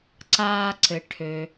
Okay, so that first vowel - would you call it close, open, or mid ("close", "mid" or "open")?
open